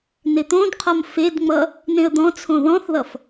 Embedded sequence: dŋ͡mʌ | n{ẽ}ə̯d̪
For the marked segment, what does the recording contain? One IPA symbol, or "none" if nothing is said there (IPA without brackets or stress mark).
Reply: ẽ